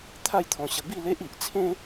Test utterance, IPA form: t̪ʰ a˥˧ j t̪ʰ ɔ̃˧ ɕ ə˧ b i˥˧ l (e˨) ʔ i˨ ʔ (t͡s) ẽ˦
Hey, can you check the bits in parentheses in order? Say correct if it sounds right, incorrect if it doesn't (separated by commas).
incorrect, incorrect